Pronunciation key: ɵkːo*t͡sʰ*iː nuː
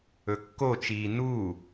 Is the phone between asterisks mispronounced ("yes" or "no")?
yes